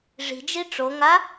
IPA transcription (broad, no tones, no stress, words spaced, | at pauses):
ʐi̤d͡ʒi ʈ͡ʂoŋa